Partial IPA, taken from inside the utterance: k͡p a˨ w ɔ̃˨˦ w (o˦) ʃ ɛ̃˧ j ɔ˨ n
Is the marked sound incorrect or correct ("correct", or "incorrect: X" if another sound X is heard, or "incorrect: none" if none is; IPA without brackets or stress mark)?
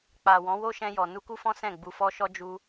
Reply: correct